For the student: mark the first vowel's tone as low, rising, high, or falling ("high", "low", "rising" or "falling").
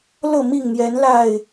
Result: falling